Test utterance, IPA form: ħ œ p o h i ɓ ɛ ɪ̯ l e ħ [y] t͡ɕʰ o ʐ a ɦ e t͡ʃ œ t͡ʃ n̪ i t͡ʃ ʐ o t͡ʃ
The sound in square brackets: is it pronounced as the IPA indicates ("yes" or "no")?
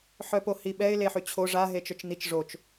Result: yes